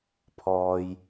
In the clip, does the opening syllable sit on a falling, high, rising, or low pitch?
low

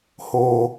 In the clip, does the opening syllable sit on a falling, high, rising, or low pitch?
high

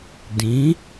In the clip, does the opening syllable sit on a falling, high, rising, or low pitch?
rising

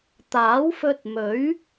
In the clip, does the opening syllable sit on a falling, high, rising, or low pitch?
rising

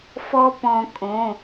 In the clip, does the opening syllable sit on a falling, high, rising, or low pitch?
high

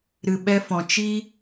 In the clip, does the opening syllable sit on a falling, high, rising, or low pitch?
low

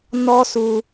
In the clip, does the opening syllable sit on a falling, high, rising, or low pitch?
high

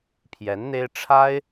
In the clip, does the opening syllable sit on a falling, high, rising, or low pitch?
rising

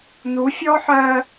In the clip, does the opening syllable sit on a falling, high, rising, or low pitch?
rising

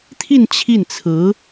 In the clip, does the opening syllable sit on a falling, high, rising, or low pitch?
falling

